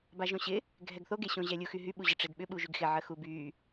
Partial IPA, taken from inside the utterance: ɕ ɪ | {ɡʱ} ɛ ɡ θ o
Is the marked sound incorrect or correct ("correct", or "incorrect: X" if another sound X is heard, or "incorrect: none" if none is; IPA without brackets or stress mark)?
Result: correct